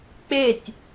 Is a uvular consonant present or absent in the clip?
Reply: absent